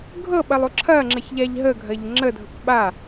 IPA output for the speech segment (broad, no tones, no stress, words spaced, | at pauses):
ɡʱɤɓɐlˠu ǁʰɐŋ͡ǁəçʎaʎ ɦəɡʱɐʎ ŋ͡ǁədʱɤk ɓa